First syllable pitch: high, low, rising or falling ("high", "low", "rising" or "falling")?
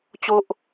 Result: high